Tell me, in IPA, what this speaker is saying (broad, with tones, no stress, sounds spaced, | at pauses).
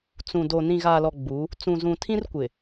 t͡s ũ˨ d o˨ n ĩ˨ ɣ aː˨ l ɔ˨ ɡ͡b u˨˦ | t͡s ũ˨ z ũ˨ tʰ ĩ˦ r kʷ ɪ˨